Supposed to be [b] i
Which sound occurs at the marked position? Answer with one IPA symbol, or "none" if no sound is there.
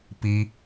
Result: p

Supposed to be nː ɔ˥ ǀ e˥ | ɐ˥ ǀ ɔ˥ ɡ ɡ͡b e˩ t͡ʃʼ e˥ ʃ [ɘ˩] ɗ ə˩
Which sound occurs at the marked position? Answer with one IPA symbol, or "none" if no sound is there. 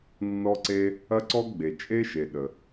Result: e˩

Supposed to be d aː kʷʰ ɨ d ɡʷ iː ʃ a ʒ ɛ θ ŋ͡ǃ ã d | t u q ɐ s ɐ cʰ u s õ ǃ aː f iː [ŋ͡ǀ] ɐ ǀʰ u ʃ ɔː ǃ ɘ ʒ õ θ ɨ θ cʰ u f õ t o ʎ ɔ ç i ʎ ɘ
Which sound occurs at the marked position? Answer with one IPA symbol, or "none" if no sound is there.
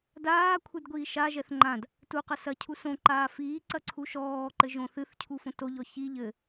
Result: ǀ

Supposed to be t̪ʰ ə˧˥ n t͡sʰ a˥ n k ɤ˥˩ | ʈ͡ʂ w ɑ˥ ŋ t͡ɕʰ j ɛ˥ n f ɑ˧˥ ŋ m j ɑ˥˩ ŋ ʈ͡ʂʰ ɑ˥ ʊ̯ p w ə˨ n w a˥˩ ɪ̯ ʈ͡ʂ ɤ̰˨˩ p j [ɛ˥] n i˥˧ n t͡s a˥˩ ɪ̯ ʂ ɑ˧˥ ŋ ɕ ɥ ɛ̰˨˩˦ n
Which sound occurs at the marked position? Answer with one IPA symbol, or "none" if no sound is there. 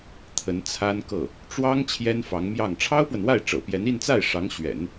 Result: ɛ˧˥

